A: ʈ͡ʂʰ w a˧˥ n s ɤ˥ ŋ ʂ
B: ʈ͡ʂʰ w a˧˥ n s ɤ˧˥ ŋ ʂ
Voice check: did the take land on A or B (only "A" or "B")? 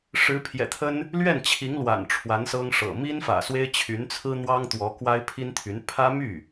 A